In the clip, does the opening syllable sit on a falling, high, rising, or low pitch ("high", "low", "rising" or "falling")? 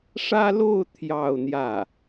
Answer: high